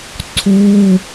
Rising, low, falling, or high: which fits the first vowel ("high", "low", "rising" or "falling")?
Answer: high